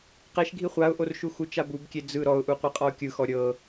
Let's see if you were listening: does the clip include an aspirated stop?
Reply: no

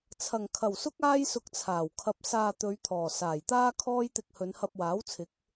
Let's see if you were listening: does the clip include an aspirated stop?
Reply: yes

